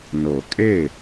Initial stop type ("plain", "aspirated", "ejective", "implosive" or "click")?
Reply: ejective